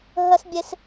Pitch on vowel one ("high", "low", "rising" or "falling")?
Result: high